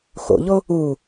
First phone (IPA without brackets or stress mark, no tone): x